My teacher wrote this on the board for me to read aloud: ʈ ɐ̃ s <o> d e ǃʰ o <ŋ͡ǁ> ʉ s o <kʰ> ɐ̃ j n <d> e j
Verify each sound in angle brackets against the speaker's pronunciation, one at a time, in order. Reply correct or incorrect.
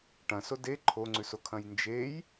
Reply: correct, incorrect, correct, incorrect

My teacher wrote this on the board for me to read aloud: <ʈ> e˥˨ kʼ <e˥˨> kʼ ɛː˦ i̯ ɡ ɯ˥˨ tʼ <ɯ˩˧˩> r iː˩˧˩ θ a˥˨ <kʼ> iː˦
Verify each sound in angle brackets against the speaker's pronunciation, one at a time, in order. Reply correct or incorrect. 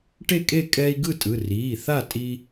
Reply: correct, correct, correct, incorrect

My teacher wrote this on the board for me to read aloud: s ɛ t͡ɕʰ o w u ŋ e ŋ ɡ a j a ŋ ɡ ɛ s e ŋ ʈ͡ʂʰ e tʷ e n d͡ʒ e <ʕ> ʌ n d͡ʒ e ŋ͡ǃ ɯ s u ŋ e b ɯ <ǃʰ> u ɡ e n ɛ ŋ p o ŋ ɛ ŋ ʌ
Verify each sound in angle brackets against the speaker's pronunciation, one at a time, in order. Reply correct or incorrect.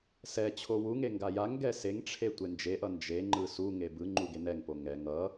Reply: incorrect, incorrect

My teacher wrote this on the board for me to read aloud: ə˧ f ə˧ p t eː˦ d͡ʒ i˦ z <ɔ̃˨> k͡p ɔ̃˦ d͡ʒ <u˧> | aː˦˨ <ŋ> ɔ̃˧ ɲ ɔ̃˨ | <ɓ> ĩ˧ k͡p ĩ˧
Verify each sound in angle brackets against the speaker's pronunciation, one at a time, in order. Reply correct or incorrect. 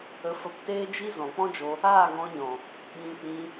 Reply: correct, incorrect, correct, correct

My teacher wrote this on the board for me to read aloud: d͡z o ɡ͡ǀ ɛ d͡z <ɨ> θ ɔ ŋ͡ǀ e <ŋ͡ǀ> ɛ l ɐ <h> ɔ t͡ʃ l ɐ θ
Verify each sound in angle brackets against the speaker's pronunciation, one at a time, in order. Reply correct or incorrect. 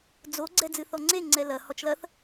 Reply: correct, correct, correct

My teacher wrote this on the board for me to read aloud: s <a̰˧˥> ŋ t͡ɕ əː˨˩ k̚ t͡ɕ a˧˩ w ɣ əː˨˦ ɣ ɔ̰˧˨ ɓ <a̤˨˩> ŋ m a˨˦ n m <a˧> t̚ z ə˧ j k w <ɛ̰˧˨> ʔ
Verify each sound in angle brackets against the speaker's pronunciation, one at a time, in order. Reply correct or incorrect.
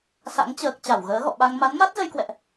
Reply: correct, incorrect, incorrect, correct

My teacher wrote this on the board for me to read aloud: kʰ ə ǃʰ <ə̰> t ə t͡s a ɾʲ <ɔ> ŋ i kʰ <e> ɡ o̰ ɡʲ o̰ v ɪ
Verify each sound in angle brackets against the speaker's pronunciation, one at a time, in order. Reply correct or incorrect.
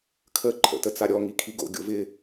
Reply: correct, correct, incorrect

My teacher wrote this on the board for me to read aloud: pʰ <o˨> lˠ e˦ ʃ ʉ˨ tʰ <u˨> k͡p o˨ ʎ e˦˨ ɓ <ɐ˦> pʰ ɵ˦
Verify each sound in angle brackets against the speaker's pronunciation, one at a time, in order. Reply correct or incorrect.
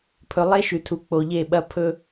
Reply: incorrect, correct, correct

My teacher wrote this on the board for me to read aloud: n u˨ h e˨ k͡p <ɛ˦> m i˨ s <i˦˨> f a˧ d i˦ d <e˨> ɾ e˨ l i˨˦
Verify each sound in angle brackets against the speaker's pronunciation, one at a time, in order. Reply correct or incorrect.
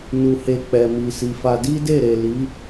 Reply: incorrect, incorrect, incorrect

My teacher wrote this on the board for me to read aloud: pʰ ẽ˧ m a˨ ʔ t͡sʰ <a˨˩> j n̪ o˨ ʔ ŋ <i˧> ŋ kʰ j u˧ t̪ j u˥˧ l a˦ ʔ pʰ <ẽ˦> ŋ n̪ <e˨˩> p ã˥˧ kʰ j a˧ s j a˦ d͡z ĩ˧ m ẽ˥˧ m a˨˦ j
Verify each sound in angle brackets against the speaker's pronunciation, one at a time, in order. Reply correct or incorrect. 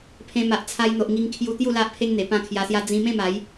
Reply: incorrect, correct, incorrect, correct

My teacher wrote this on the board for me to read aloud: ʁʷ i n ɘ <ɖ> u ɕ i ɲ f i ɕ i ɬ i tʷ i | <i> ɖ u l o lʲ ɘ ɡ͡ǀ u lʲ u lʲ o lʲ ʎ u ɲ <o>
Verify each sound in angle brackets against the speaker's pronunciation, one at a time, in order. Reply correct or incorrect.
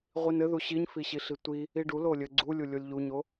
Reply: incorrect, correct, correct

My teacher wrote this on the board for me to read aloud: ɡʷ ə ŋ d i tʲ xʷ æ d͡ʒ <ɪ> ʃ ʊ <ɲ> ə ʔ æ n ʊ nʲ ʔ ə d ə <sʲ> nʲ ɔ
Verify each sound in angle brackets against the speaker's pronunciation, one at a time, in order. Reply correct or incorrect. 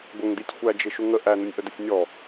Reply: correct, incorrect, correct

